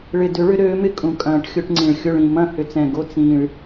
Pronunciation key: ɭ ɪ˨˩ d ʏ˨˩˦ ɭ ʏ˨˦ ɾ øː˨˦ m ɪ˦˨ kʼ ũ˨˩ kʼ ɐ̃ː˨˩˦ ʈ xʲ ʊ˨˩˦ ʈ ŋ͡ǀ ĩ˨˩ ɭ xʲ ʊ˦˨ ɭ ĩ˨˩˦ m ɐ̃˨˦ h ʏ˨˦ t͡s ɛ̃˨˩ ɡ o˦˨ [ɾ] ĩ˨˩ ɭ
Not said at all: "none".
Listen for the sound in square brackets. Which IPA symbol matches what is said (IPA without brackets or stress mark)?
t͡s